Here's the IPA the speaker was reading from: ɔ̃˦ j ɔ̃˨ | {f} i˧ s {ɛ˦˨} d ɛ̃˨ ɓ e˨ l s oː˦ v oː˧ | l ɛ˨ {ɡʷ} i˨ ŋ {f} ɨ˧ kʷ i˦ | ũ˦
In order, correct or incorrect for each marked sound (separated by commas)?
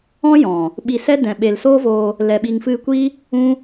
incorrect, incorrect, incorrect, correct